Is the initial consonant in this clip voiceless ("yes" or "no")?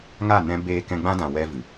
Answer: no